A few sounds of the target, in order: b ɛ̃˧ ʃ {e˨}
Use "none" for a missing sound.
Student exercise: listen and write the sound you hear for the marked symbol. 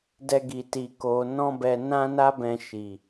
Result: i˨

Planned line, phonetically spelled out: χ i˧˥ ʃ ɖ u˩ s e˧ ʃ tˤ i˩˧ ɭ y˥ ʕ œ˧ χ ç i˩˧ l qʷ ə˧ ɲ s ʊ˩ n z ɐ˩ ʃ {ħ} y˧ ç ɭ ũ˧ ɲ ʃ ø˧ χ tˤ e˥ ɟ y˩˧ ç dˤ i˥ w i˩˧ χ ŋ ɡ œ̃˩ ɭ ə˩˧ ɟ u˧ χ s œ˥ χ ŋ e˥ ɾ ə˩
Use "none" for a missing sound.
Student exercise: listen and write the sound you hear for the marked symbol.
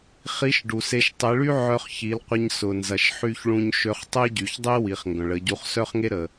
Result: ħ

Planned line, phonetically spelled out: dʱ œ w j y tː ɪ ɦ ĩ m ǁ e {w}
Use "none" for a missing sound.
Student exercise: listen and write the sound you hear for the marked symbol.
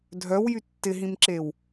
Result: w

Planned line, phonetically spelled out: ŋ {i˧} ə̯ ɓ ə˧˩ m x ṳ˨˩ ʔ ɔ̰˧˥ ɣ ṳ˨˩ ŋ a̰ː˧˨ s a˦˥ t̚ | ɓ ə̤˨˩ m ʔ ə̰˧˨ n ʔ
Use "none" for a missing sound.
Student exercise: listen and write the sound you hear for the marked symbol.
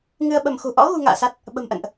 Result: ɨ˧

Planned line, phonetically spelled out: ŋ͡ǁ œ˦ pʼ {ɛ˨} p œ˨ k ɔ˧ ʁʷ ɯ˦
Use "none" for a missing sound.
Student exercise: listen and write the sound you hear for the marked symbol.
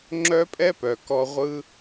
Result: ɛ˦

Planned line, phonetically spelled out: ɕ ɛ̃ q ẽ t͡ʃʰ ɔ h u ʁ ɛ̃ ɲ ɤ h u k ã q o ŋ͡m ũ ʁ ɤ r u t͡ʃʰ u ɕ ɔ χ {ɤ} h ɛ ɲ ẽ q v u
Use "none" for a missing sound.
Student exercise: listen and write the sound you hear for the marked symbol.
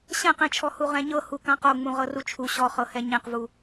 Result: ɤ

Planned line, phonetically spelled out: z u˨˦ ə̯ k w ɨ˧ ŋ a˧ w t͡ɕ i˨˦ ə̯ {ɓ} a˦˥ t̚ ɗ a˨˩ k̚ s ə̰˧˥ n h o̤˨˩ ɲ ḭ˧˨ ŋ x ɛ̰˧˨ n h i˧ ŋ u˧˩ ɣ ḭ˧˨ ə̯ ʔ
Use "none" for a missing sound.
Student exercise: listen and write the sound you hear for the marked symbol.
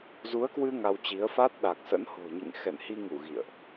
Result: f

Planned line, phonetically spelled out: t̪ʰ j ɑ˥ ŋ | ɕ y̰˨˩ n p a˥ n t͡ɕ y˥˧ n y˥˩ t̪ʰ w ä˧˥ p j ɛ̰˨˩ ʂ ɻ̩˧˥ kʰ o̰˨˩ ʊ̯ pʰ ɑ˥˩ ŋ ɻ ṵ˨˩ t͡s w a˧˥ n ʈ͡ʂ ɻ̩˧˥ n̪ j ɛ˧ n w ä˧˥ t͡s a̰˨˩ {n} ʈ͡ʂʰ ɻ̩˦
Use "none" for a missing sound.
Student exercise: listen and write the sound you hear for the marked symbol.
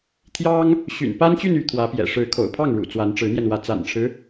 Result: n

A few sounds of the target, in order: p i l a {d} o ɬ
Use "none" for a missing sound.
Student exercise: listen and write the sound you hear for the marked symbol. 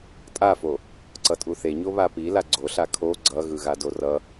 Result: ɡ͡ǀ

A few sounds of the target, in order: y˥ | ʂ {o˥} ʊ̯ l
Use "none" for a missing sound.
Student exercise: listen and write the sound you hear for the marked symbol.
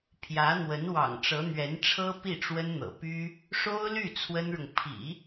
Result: o˥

